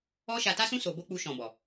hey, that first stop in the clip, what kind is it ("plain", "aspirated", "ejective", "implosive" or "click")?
plain